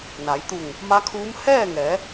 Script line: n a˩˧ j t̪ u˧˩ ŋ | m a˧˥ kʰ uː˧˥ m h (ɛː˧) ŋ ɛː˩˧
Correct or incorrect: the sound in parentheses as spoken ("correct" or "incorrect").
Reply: incorrect